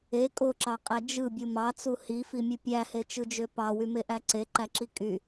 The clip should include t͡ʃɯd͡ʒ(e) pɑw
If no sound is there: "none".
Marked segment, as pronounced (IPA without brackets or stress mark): ø